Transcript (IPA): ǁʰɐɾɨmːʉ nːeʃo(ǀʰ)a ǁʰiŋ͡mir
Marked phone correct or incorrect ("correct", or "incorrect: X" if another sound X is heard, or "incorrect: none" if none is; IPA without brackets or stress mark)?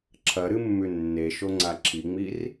incorrect: ŋ͡ǀ